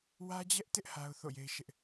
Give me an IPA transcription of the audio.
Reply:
wä˦d͡ʑɛ˦ʔtɪ˦ʔ ha˦ʊ̯θo̰˦˨je˦ɪ̯ ʃɪ˦ʔ

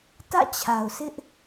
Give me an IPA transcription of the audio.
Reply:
tä̰˦˨t͡ɕʰa˨ʊ̯sɪ˦ʔ

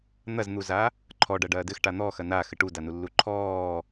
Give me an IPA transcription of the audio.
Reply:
n̪ɐzn̪uza | ǃʰɔ ɖɐɖɐːdɘx ʈan̪ɔxɐ na xɘʈudanu lːuǃʰɔː

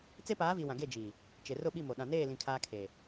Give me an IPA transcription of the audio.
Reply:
t͡se˦paː˨˦vi˨ wã˨ɡe˦˨d͡ʒi˨ | t͡ʃe˨rʊ˦˨ɓi˦˨mo˨ ɗã˨neː˦˨lĩ˨ kʰaː˦kʰe˨

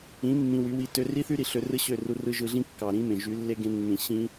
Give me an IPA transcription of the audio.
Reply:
ĩ˨˦ mːĩ˧wy˨˦wi˧ tø˧ri˦θy˦ɾi˨ ɬø˧rɯ˦ɕø˦˨ru˧ rɯ˧ʒɯ˧ɮĩ˦ kːɑ˨ ɾĩ˦mẽ˨ ʒy˨˦lːe˦ ɡẽ˧nːĩ˨ ɕĩ˦

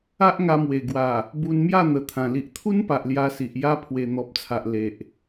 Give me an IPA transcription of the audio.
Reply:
a˦ʔŋa˧mwe˨˩ ɡwa˨˩ | bu˧nmja˥˧n̪ə˨˩t̪ʰã˨˩ li˨ʔt̪ʰu˦npa˨ʔ lja˧si˨ʔ ja˦ pʰwe˨˩n̪ɔ˨p̚t͡sʰa˨ʔ le˨ʔ

